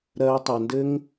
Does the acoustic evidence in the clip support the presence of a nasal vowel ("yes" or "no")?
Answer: no